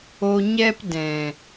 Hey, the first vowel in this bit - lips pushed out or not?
yes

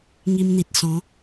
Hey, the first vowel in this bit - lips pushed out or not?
no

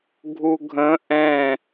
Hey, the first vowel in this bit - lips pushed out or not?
yes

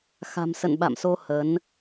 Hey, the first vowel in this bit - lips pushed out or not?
no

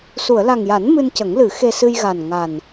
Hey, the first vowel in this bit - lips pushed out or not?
yes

